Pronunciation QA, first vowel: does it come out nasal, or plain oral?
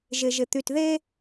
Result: oral